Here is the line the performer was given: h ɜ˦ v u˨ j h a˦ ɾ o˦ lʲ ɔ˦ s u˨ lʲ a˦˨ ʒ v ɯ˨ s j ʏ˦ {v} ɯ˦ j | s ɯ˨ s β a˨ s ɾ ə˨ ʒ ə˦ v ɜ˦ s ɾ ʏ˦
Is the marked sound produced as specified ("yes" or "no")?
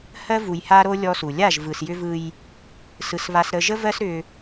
yes